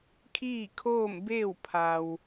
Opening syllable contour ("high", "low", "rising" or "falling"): falling